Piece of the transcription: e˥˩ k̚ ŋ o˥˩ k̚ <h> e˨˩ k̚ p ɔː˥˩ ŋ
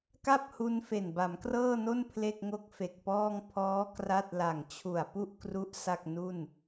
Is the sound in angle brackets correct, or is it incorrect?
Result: incorrect